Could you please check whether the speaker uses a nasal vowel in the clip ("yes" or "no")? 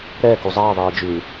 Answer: no